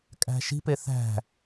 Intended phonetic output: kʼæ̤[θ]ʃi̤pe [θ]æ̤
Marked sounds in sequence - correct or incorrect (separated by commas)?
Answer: incorrect, correct